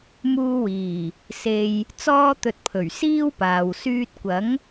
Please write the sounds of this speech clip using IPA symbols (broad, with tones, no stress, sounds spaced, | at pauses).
m uː˧ w iː˨˩ | s e˧ j | t͡s ɔː˥ t̪ ɵ˧ t̚ pʰ ɵ˨˩ ɥ s iː˥ w p aː˨ w s yː˧ t̚ kʷ ɐ˨˥ ŋ